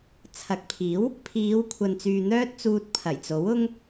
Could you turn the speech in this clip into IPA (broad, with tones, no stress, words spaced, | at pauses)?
t͡sʰɐ˨k̚pʰiː˨˥w | pʰiː˨˧wkʷʰɐ˨nt͡syː˨ n̪œː˥t̚t͡suː˧t̚pʰɐ˨˩jt͡so˨˥w ʊ˥ŋ